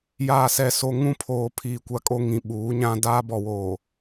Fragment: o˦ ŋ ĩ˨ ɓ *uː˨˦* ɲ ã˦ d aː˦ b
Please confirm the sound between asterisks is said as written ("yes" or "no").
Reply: yes